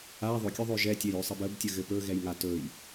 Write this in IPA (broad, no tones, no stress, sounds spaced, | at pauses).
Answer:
a ðˤ ɵ kʲ ɵ ðˤ ø ʒ ɛ tʲ ɛ j ø sˤ ɘ b ə b tʲ ə ɣ ɘ p ɵ ɣ ɛ j ŋ a t ɵ j